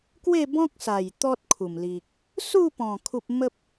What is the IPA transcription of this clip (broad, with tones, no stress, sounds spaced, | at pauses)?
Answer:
k w e˥˧ b ɔ̃˦ k̚ s a˨˩ j t̪ ɔ˦ t̚ kʰ u˨˩ m l i˨ k̚ | s u˥˧ p ɔ̃˨˩ kʰ u˦ p̚ m ə˦ p̚